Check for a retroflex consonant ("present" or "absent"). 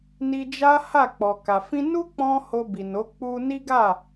absent